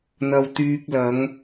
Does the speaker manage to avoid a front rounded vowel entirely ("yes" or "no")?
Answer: no